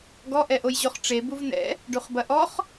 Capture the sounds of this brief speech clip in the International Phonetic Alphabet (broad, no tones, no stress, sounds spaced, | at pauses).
ɡ ɔ ʔ ɛ ʔ o j ʑ o χ ʈ͡ʂ e b u v n ɛ̰ | ɖ u χ b ɐ ʔ ɔ χ